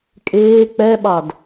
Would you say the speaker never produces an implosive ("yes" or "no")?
no